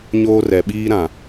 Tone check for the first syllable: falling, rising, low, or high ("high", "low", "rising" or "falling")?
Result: high